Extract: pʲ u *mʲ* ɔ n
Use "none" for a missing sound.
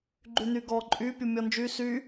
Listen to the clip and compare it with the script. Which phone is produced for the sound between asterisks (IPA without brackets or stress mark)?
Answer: mʲ